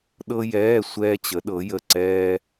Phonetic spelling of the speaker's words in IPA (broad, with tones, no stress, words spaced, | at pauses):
ɗɤ˥jɛː˧˥˧ sʷɛː˥t͡ɕə˧˥ɗɤ˧˥jə˦˨ ǀɛː˥